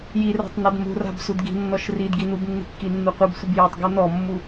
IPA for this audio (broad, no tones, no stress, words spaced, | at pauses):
jira̤tˤnad mṳra̤b sudɡi̤nːɔʃ ridɡi nubnːi̤kːinːu qʷɨbsʷɨb jatˤɡu nɔmːu